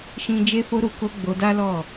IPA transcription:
ʃ ĩ˦ d͡ʒ e˦ f o˦ ɾ u˧ k o˦ ɡ͡b o˧ d a˦ l ɔ˦˨

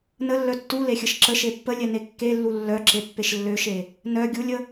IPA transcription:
n ə lː œ tː u l e xʲ ə ʃ ǁ ə ʃ e pː ə lʲ ɛ n e kː e lː u lː œ ǁ e pː e ʃ lː ø ʃ e | n œ ɡʲ u lʲ ə

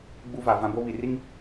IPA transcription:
ɡ͡b u˦ v a˨ v ã˦ b o˦ β i˨ r i˦ ŋ

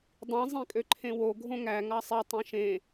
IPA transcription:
dˤ ĩ zˤ ĩ kʼ ø ǃʰ ẽ w o ɡʱ õ ŋ æ ŋ ɑ sˤ e tˤ ĩ ʃ ẽ

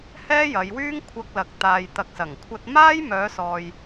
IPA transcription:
h ɛː˥ j ɐ˨˧ j w yː˥ ŋ kʷʰ ɐ˧ k̚ l ɐ˨ k̚ t̪ aː˨ j t̪ ɐ˨ k̚ s ɐ˨˩ ŋ kʷʰ ɐ˧ t̚ m aː˥ j m œː˨˧ s ɔː˨ j

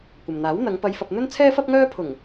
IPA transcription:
kʷ ɐ˨ m n̪ aː˨˥ w n̪ ɐ˨˧ ŋ p ɐ˨˧ j f ɐ˨ p̚ n̪ ɵ˥ n t͡sʰ ɛː˥ f ɐ˥ p̚ ŋ œː˥ pʰ ʊ˨˩ ŋ

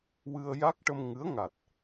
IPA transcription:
w ɨ˧ ə̯ j a˦˥ k̚ ʈ ə˧ m ŋ ɨ˧˥ ə̯ ŋ a˨˩ t̚

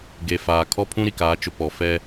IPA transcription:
ɡ e˨ f aː˨ kʰ ɔ˦ pʰ ũ˦ ɾ i˨ k aː˨˦ t͡ʃ ʊ˨ p ɔ˨ f ɛ˦

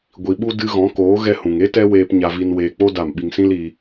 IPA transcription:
ɡʷ i˨ ɓ u˧ d ɨ˧ ɣ ɔ̃˨˦ k oː˨˦ ɣ ɛ˧ h ũ˨ ŋ e˦ t ɛ˦ w eː˧ p ɲ a˧ v i˧ n w eː˧ k͡p o˦ d a˦˨ m ɓ i˦ ŋ s ĩ˦ l iː˧

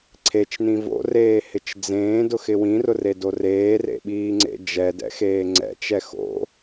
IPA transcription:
ǀʰ e t͡ʃ n ĩ v o̰ r eː h ɪ t͡ʃ d͡z ẽː d ʊ x ɪ w ĩ r ʊ r e d o r eː r ḛ ɓ iː ŋ͡ǀ ḛ d͡ʒ ɛ d ɛ̰ x eː ŋ͡ǀ ɛ̰ t͡ʃ ɛ x o̰

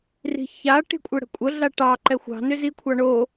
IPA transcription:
r i̤ ç a ʈ i̤ kʷʼ ɘ ɽ ə̤ kʷʼ ə ɮ a ʈ ɑ ǃ ɛ xʷ ɑ̤ n ʏ z i kʷʰ ɑ ɳ o

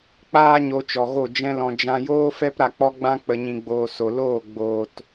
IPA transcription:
k͡p aː˦ ɲ o˧ t͡ʃ ɔ˨ ɣ o˦˨ d͡ʒ ɛ̃˦ l ɔ̃˧ d͡ʒ ã˧ j oː˦ f ɛ˦ p ɾ a˧ k͡p ɔ˦ ɡ͡b ã˦ k͡p ə˨ ɲ ĩ˨ ɡ͡b oː˨ s o˨ l oː˦˨ ɡ͡b oː˨ t

